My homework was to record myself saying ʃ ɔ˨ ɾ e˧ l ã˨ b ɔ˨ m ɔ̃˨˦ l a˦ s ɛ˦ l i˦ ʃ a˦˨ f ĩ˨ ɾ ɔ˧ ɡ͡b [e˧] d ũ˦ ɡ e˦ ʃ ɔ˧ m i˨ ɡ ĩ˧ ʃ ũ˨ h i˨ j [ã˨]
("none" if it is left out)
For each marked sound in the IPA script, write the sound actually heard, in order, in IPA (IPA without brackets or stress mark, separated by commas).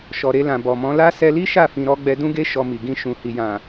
ɛ˧, ã˨